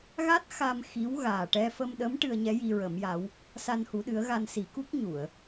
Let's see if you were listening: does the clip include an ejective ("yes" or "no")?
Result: no